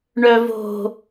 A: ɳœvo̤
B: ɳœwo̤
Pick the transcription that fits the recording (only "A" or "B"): A